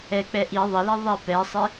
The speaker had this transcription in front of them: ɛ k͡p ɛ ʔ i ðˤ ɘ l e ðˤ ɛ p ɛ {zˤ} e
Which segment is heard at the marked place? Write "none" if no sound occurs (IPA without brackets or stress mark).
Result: sˤ